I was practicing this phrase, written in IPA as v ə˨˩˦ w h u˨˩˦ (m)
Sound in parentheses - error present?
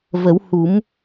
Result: no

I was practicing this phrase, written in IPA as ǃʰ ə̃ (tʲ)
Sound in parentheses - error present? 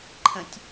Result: no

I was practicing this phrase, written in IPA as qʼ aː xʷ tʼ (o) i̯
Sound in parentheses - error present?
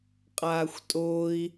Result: no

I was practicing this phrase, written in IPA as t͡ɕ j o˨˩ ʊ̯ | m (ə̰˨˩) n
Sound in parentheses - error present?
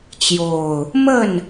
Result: yes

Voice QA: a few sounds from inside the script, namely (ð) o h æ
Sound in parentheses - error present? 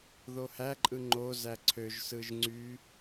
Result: no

